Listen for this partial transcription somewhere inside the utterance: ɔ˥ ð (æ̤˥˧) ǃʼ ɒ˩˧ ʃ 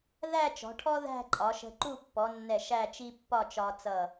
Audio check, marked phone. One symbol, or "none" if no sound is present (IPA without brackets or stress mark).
æ̤˥˧